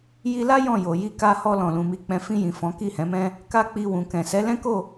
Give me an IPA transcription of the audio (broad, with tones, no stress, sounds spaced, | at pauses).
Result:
j i˧ l a˦ j ɔ̃˦˨ j o˨ j i˧ k a˧ h ɔ˧ l ɔ̃˨ l ũ˨ m i˨˦ k͡p ɛ̃˧ f ĩ˧ j ĩ˨ f ɔ̃˨˦ k i˦˨ h ɛ̃˨˦ m ɛ̃˦ | k a˦ k͡p i˧ w ũ˨ k ɛ̃˨ s ɛ˨˦ l ɛ̃˦ k o˦˨